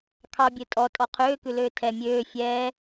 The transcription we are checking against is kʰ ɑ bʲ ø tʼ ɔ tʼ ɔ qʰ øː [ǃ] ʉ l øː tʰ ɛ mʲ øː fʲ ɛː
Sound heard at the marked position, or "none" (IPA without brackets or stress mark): k